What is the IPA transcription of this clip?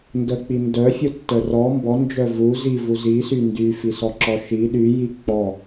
n d ə k͡p i n d œ fʲ u tː œ r ɔ m b ɔ n d͡ʒ œ v u z i v u z i s y n d y f i s ɔ ǁ ɔ ʃ i ɗ y j i k͡p ɔ

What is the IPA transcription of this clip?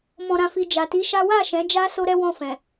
m ɔ̃˧ ɾ ã˧ f i˧ d͡ʒ a˨ t i˨˦ ʃ a˦ w a˦˨ ʃ ɛ̃˨˦ d͡ʒ a˦ s o˦ ɾ ɛ˦ w ɔ̃˦˨ f ɛ̃˨

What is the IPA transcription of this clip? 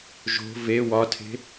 ʒ o̤ v e w ɒ tʰ e̤

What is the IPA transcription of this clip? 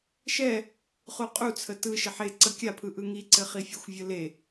ʃ ɛ | χ u qʼ u t͡sʰ ə t ɯ ʃ ɘ ħ e ǀ ə kʲ a pʰ ɯ ʔ ɯ ŋ i ǀ ɘ χ i fʲ ə xʷ vʲ ə l e

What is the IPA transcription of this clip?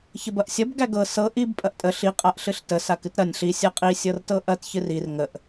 ç ə b ɐ ʔ sʲ ɐ b ɡ æ ɡ ɤ s ɤ ʔ i b pʼ ɐ ʔ tʼ ə ɬ i qʼ a ʔ ɬ ɨ ɬ t ə s a k ɨ t ɾ ɐ nʲ ɬ i sʲ a qʼ i sʲ ɤ r t ɤ ʔ ɐ t ç ɨ r i r ŋ ə ʔ

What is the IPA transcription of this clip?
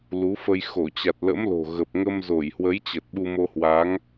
l u˨˦ f ə˧ j x o˧˩ t͡ɕ a˨˩ t̚ l ə̰˧˥ m l o̤˨˩ ɣ ə˨˩ p̚ ŋ ə˧ m z o˧˩ j h w ə˨˦ j t͡ɕ ə˨˩ t̚ ɓ u˧ m o˧ h w a˨˦ ŋ

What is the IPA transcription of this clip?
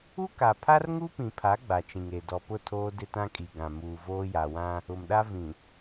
u˦ k a˨ pʰ a˦ r ŋ u˦ p ĩ˨ pʰ a˨˦ ɡ͡b a˨ t͡ʃ ĩ˨ ŋ e˨ d ɔ˨ p ʊ˦˨ tʰ oː˦ d ɪ˦ t ã˦ kʼ i˨ ɡ ã˨ m uː˨ v oː˦ j a˨ w ã˦ | ʊ˨ m ɗ a˦ v ĩ˨

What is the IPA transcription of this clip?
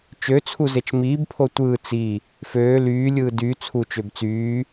t͡ʃ ø t͡sʰ u z e t͡ʃ m iː b pʰ o tʷ ɯː t͡s i | f øː l yː lʲ ɯː d y t͡sʰ u t͡ʃ ø b t͡s yː

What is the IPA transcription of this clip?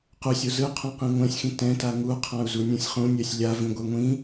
q u sʲ o z ɯ qʰ õ q ĩ ŋʷ ɛ̃ sʲ x ĩ t ɛ̃ t a ŋ u qʰ ã u̯ z u nʲ ũ sʲ χ ũ nʲ ɛ sʲ lʲ a v ĩ ɡʷ ɛ ŋʷ ĩ

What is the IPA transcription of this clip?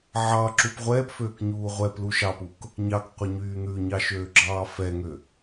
ʕ ɑ ǁ u p ʁʷ ɛː p f øː k ɲ uː ʁʷ ɛ p l u ʃ ɑ p u k | ɲ ɑ k qʷ ɛ ɲ yː n̪ ʉ ɲ ɑ ʃ øː ɡ͡ǁ ɑː f ɛ ŋ ø

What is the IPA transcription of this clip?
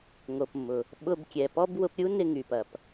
ŋ o˩ p mː ʊ˩ | ɓ ʊ˧ b kʲ ɛ˩ p ɔ˥ b w ʊ˧ p ɾʲ u˥ n ɪ˧ ŋ y˩ p ɐ˩ p

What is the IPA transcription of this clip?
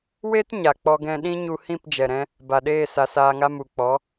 w e˦ t ɲ a˨ k͡p ɔ˧ ɡ ɛ̃˧ ɗ ĩ˦ ɲ u˧ h ĩ˦˨ p d͡ʒ ɛ˨ ɾ ɛ̃˧ | b a˨ ɗ eː˦˨ s a˧ s aː˧ ŋ a˦ m u˨ k͡p ɔ˨˦

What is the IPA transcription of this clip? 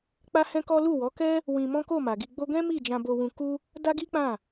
k͡p a˦ h ɛ̃˦ k ɔ˦ l u˦˨ w ɔ˨˦ k ɛ˦ | w ĩ˧ m ɔ̃˦ k o˦˨ m a˨ ɡ i˧ ɡ͡b o˦ ɡ ɛ̃˦ m i˦˨ d͡ʒ ã˧ b o˧ w ũ˧ k u˦ | d a˦ ɡ i˦ k͡p ã˦˨

